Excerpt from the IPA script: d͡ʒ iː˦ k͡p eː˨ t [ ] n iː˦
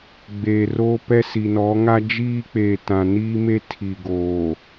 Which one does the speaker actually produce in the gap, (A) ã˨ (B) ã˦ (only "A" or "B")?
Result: A